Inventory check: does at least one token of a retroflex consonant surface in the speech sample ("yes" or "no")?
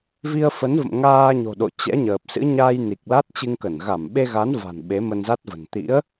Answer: no